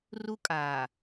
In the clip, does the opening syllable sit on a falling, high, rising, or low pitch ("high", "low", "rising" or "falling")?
high